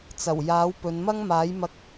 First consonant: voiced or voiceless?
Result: voiceless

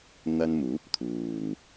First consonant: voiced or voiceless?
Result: voiced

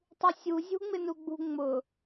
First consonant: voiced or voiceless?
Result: voiceless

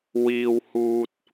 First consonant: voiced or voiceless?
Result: voiced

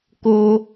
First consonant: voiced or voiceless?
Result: voiceless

